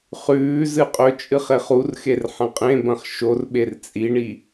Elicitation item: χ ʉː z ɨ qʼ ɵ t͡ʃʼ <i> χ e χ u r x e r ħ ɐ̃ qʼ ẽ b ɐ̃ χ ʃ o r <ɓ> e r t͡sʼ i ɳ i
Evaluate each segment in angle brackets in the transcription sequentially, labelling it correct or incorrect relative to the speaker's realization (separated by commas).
incorrect, correct